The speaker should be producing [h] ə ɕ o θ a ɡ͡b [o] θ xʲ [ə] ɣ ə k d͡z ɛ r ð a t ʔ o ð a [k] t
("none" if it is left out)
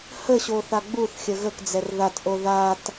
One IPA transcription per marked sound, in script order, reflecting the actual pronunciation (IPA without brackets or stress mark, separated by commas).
h, u, ə, none